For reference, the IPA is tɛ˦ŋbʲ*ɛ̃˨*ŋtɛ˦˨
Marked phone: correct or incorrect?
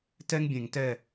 incorrect